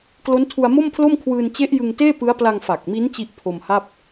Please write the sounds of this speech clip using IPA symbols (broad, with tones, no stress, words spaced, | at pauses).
klo˦˥ntʰu˧a̯mo˥˩mpʰlo˥˩m kʰwɯː˧nt͡ɕe˦˥ʔ jɯ˧ŋteː˥˩pɯ˦˥a̯ pla˧ŋ fa˨˩k̚mi˦˥n t͡ɕi˥˩ʔ pʰo˧mha˥˩p̚